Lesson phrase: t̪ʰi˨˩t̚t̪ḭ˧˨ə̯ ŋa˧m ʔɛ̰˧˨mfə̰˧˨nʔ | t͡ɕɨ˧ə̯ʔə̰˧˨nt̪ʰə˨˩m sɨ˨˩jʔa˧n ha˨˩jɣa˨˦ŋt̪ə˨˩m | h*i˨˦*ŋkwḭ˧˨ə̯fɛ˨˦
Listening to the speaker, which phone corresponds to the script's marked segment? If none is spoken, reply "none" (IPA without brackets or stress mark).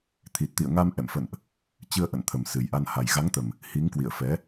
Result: i˨˦